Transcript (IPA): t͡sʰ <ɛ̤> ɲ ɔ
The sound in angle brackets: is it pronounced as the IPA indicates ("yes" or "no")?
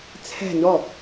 yes